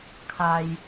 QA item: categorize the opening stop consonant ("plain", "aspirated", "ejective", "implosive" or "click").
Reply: aspirated